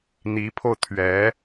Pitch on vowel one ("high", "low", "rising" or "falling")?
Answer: rising